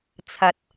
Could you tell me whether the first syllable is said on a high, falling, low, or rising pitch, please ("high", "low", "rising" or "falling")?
low